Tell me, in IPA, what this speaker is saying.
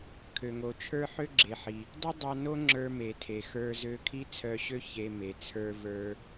kʰ ø˩ ŋ o˩ t͡ʃʰ ə˞˥ ħ ø˥ ɡ͡ǁ e˩ ħ i˩ | dˤ i˥ dˤ ɑ˧ n o˥ ŋ͡ǁ ə˞˧ m e˩ tʰ e˩ x ə˞˧ z ø˧ kʰ i˥ t͡sʰ œ˧ ɕ ø˥ ç e˧ m e˩ t͡sʰ ə˞˧ v ə˞˧

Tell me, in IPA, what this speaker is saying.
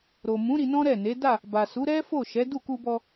ɾ o˨ m ũ˨˦ ɾ i˧ n ɔ̃˦ ɾ ɛ˦˨ n e˨˦ d a˦˨ | b a˨ s u˨˦ ɾ ɛ˦ f o˦˨ ʃ ɛ˨˦ d u˦˨ k u˧ b ɔ˧

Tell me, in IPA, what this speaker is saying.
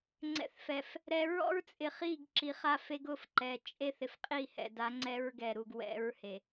ŋ͡ǀ ɛ̰˨ θ f ɛ˨ f | ɾ ɛ˨ ɹ ɔ̰˦ ɹ t͡sʼ ɪ˨ χ i˦˨ ɡ ǁ i˨ χ a˦ f e˦ ɡ ʊ˦ f ǃ ɛ˨ t͡ʃʼ e˦ θ ɪ˨ f qʼ i˦˨ h ɛ̰˨ d a˨˦ ŋ͡ǀ ɛ˦ ɹ ɡ ɛ˨ ɾ u˨ ɡ w ɛ̰˨˦ ɹ h e˨

